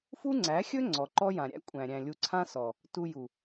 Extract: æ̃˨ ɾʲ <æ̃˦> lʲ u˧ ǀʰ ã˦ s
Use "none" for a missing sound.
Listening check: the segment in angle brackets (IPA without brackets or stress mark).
æ̃˨